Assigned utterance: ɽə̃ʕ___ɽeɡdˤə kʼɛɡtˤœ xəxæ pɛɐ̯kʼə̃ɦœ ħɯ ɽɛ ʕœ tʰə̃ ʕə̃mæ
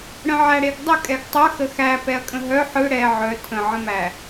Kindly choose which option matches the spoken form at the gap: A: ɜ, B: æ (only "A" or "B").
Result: B